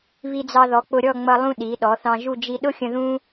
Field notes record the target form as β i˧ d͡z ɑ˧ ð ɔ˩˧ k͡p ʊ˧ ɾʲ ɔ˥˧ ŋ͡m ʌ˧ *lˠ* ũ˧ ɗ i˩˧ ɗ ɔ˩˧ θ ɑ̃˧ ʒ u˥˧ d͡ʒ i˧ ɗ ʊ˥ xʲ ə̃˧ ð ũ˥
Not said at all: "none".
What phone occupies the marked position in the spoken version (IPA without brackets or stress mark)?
lˠ